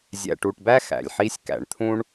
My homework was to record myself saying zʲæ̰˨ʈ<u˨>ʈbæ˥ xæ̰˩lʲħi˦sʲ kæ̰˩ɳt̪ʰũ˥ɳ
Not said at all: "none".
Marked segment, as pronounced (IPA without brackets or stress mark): u˨